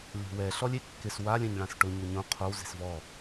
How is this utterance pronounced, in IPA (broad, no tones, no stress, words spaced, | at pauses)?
lʲo̤wɛ ɬɔlʲekːɪs walʲɛ̃ɲɭãs ʈʊɲo ɲõ qʰow ze̤svɔ